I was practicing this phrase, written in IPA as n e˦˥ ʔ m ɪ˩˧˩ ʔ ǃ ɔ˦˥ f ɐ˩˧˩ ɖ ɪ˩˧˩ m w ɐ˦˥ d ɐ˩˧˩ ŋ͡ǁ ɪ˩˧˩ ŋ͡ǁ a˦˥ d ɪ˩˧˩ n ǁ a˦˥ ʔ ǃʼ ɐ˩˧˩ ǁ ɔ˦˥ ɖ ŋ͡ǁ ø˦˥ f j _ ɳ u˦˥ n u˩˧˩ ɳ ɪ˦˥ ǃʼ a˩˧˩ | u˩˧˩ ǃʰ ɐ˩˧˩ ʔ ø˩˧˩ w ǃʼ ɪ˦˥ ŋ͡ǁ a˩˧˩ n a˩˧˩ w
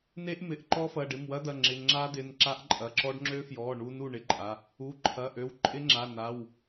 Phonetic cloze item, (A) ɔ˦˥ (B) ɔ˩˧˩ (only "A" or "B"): B